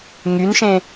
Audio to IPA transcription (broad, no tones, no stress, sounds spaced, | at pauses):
ŋ y n ʃ ẽ